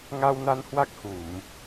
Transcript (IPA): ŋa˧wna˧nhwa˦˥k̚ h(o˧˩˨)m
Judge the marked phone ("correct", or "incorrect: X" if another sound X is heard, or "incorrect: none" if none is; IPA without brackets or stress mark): incorrect: u˧˩˨